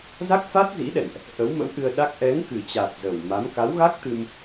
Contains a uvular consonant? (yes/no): no